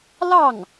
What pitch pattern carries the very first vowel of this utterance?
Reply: falling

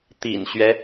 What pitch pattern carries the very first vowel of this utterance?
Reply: low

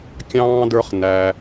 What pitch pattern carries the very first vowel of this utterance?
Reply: high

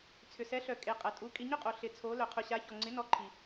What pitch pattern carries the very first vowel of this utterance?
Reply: low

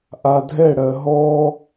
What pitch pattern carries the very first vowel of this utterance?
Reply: low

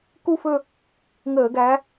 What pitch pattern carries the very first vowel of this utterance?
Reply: falling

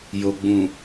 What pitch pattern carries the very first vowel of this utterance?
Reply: low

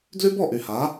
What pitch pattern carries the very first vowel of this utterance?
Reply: high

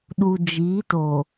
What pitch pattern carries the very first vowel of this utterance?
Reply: low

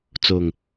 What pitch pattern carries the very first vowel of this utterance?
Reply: low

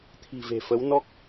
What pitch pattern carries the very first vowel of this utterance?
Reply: low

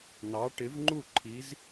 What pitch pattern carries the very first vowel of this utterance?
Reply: rising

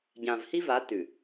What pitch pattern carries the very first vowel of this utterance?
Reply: low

